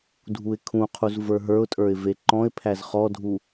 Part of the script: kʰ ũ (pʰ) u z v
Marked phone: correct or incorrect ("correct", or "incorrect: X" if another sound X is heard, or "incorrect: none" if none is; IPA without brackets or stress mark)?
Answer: incorrect: qʰ